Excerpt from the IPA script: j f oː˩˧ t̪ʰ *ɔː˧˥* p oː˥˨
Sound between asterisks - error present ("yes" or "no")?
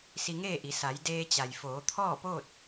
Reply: yes